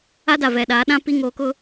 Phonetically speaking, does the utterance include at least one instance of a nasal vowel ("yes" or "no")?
yes